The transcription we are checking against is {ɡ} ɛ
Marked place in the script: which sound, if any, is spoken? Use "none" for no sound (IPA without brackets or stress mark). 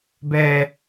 b